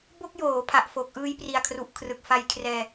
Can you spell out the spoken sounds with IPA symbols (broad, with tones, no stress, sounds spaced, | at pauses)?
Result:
b o˥˩ k̚ j oː˩˦ pʰ a˨˩ ʔ f o˨˩ k̚ ʔ ɯː˧ j p r i˨˩ a̯ kʰ r u˨˩ ʔ kʰ r ɯ˨˩ k̚ f a˧ j kʰ r ɛː˧